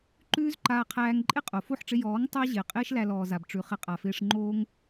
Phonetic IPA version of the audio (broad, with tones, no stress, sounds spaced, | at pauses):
ǃ ʉː˦ z ǃ aː˧ qʰ æː˧ ŋ ǃʼ ɪ˦ qʼ o˨ f o˦˨ ħ ʈ͡ʂ ɪ˧ j ɔː˨˦ ŋ tˤ æ˦ ʑ ɪː˨ qʼ ɪː˦ ʃ l æ˧ l ɔː˨ z a˨ b ʈ͡ʂ ʉ˨ χ ɪ˧ qʼ a˨ f ɪː˧ ʂ ŋ͡ǃ oː˦ ŋ